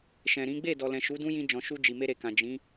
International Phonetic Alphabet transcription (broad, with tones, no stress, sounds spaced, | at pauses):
ʃ ɛ̃˨ ɾ ĩ˨˦ ɡ͡b e˦˨ d ɔ˨ l ɛ̃˨ ʃ u˨˦ d ũ˦ j ĩ˧ d͡ʒ ɔ̃˨ ʃ u˧ d͡ʒ i˨ m e˧ ɾ e˨ k ã˨ d͡ʒ ĩ˨˦